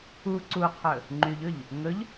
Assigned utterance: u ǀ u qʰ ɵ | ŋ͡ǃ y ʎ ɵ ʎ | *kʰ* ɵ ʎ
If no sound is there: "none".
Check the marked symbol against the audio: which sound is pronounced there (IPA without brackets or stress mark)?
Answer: ŋ